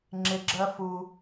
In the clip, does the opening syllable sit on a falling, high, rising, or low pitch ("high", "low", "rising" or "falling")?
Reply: low